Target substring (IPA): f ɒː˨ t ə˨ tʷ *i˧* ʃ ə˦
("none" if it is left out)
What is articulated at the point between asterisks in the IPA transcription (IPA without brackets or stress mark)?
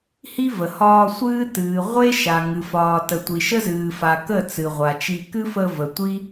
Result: i˨